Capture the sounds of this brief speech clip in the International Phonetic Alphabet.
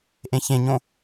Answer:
ʔẽçẽɲõ

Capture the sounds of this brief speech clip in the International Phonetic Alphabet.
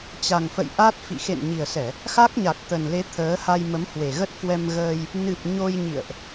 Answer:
t͡ɕa˨˩ŋfə̰˧˨jʔa˦˥t̚ fḭ˧˨ xḛ˧˨n ɲi˨˩ə̯sɛ˧˩˨ | xa˦˥k̚ɲa˨˩k̚t̪ə˨˩nle˨˦ t̪ʰəː˨˦ha˧j mə˨˦mhwe˨˩ɣə˦˥t̚ kwɛ˧mɣəː˧j | nɨ˨˩p̚ ɲo˧jɲḭ˧˨ə̯ʔ

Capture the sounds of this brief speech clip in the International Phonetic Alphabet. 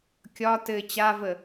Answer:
kʲɒ tɘ t͡ɕavə

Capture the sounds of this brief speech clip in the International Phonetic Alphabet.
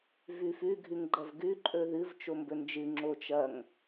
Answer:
vʉfʉ ɡʱʉŋɡ͡ǃɐvɡʉ ǃʼɵðɨv t͡ʃombɵnd͡ʒɨ ŋ͡ǁot͡ʃɐŋ

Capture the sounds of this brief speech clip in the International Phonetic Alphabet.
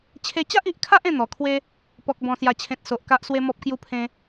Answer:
t͡ɕʰe˧ t͡ɕa˦ʔi˨ʔkʰa˦ʔ ẽ˦n̪ɔ˨˩kʰwe˦ | pɔ˨k̚bɔ̃˨˩sja˨˩t͡ɕʰẽ˨t̚ so˨ʔka˦ʔswe˦ mɔ˦p̚kju˦pʰẽ˦

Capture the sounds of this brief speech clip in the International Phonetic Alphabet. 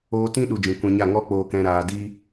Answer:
oː˧tĩ˦ɗu˨ d͡ʒĩ˨kʷɛ̃˧ɲa˦˨ ŋɔ˦k͡poː˧kɛ̃˧ ɾaː˧ di˦

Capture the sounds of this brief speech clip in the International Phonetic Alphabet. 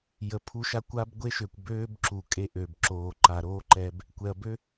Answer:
jə˨pʰu˧ʃa˦˨kʷaː˦b ɡʷe˦ʃø˨kʷ bøː˦b ǁu˨kʼe˦˨ʔø˨b ǁoː˨ ǃa˨ɾoː˦ǃɛ˧b | kʷɛ˨ɐ̯bø˦

